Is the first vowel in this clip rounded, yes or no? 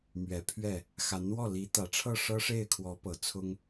no